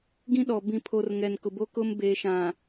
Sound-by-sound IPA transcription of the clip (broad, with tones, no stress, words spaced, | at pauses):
ɡĩ˦ɗɔ˨ bĩ˨pʰo˨r ŋɛ˨nkʊ˨bo˦kʊ˦m beː˨ʃã˨